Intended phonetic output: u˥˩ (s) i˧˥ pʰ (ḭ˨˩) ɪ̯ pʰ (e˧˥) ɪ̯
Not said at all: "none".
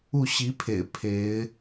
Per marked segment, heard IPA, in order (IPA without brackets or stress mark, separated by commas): ɕ, ḛ˨˩, e˧˥